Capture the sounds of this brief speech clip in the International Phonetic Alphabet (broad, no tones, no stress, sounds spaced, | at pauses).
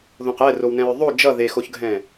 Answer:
ð õ q ɛ r o w n ɛ̃ ɹ ðˤ o d͡ʒ ʌ ð e x o ç ɡʱ ɛ̃